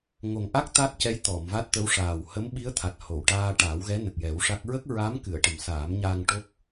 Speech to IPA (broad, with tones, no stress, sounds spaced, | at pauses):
ŋ o˨˩ ŋ ʔ a˦˥ k̚ t̪ a˦˥ t̚ c ɛ˧˥ j t̪ ɔ˨˩˨ m v a˦˥ t̚ t̪ ə˧˥ w ʂ aː˨˩ w h ə˧˥ m ɓ i˧˥ ə̯ t̪ʰ a˨˩ t̚ h o˨˩˨ w ʈ aː˧ ʈ aː˨˩˦ w ɣ ɛ˧˥ n ə˨˩ k̚ j ɛ˨˩˦ w ʂ a˦˥ k̚ ɹ ə˦˥ k̚ ɹ a˧˥ m k ɨ˨˩˨ ə̯ ʈ ə˨˩ m s aː˨˩˦ m ɲ aː˧ ŋ ʈ o˦˥ k̚